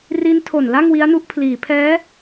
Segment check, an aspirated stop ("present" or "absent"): present